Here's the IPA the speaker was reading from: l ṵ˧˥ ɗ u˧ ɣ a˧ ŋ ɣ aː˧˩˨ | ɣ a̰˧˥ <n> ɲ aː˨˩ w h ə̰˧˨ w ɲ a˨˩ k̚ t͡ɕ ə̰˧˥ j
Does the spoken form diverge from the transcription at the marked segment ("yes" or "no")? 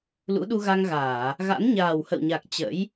no